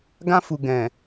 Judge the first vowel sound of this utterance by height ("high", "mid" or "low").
low